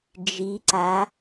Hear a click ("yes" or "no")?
yes